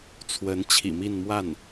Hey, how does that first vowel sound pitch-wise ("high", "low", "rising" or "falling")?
rising